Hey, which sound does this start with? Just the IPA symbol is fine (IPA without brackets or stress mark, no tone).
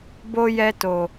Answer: b